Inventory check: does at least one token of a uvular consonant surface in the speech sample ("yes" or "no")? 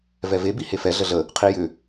yes